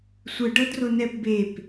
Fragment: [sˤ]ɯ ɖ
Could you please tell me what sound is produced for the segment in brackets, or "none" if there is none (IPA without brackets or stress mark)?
sʷ